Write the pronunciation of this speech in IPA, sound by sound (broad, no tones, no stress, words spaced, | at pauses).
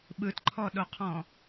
ɓɯtǃʰɔɗoqʰɔ̃